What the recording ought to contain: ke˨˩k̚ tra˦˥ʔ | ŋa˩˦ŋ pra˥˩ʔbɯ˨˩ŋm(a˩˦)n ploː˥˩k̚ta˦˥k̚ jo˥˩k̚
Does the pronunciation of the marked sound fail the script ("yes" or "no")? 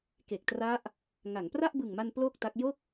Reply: yes